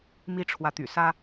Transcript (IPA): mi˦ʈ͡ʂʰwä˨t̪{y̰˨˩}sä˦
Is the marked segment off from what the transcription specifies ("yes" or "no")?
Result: no